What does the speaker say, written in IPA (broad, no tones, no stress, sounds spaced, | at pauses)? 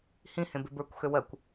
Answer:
h ĩ h ẽ b e b ə˞ kʷ x ø w ɜ kʷ